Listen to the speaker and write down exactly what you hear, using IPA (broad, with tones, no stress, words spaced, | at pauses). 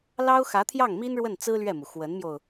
lɑ˥ʊ̯xä˧˥t̪ʰjɑ˥˩ŋmi˥n ɻwə˥˩nt͡sɹ̩˥ lɥɛ˥˩mu˩ xwə˧˥nmjo˧ʊ̯